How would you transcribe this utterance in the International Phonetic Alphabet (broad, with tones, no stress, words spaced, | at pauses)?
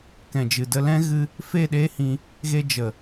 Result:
kɛ̃˨ d͡ʒɨ˨də˧ lɛ̃˦ ɣɨ˧ | fe˦˨ɗeː˦hĩ˧ | ɣe˧d͡ʒə˨